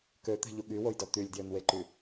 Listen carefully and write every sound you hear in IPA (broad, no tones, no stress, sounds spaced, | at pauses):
k ø t̪ ɛ̤ ʎ u ɠ y w o j d ɔ t̪ y lʲ d j ø n w e ǃ y